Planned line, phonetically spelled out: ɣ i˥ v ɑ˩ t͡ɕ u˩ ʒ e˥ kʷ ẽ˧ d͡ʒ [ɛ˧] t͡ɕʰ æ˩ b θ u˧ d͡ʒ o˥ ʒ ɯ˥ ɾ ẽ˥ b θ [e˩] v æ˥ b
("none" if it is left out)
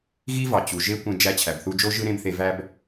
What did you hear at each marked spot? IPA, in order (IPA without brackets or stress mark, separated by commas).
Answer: æ˧, e˧